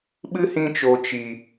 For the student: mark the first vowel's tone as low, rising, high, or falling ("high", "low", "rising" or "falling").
high